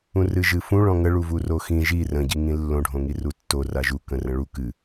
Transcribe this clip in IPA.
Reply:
ũrɨʒɨfũ ɭɔ̃ŋə ɭuvuroxĩ ʒi rə̃ ɟiŋĩlːõ ɖʱõŋirutːo raʒu kə̃rə̃ɭu kɨ

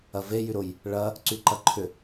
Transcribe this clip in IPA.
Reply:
ɐve jyɾʊj | ɭɐ | ǀyǃɐǃʰʏ

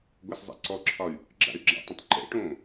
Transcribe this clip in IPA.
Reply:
ɡʷaszˤḛǀɔǁʰɒy̯ | ɡ͡ǁa̰y̯ɡ͡ǁa̰tˤə̃tˤ ǃɛ̰ʈõː

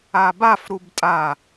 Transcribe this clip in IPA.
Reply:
abaf ɾubtʼa

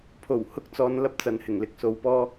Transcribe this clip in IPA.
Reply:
pʰo˨˩w hʊ˥k̚t͡sɔː˧nlɐ˥p̚t͡sɐ˨˧n hɪ˨˩ŋlɪ˨˥k̚so˨˧wpɔː˥

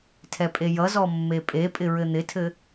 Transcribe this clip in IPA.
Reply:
tʰɛpʼejʌzɔ mːepʼepʼɪ ɹɘn̪ɪtʰɘ

